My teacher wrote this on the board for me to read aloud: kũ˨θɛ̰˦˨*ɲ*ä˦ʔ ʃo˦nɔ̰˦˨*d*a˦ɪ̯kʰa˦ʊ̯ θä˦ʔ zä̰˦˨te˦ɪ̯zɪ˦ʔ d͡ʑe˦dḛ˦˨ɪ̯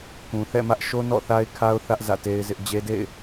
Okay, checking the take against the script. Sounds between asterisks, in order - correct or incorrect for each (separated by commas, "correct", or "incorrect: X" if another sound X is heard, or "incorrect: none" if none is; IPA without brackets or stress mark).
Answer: incorrect: m, incorrect: θ